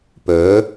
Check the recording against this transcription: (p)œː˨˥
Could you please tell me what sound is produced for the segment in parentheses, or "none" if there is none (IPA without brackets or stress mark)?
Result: p